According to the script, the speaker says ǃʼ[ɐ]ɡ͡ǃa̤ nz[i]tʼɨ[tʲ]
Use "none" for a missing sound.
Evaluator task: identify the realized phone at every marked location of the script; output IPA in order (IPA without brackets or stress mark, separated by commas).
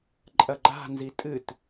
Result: ɐ, i, t